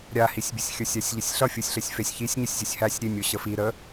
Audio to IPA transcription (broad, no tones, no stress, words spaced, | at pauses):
ɾʲahisʲbʲəsʲ xʲə˞sʲasʲʎəsʲɬʌ fʲusʲɬesʲfesʲ çisʲɲəsʲzʲosʲ hæsʲ ɾʲemʲo ɕəfi ɾə